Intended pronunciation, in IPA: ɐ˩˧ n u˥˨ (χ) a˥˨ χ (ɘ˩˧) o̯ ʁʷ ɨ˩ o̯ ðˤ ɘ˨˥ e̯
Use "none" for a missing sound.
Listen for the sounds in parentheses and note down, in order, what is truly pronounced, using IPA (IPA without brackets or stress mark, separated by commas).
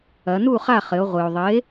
χ, ɘ˩˧